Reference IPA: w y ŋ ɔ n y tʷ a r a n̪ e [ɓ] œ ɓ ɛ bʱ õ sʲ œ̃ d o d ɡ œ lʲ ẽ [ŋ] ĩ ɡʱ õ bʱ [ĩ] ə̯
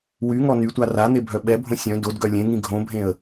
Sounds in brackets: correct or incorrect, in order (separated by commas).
incorrect, correct, incorrect